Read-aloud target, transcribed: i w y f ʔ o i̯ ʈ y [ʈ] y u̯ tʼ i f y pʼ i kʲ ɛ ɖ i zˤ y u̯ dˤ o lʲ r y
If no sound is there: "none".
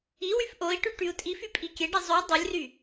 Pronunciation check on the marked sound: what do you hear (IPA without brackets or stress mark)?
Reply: ʈ